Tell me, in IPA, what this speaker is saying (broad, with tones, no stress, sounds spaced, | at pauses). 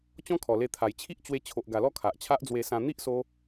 t͡ɕ ɔ̃˦ kʰ ɔ˨˩ l e˧ t̪ʰ a˨˩ j t͡ɕʰ i˦ ʔ t͡ɕ w e˧ t͡ɕʰ o˨ ʔ ɡ a˨˩ l ɔ˥˧ kʰ a˨ ʔ t͡ɕʰ a˦ ʔ d͡z w e˧ s ã˧ n̪ i˦ ʔ s o˧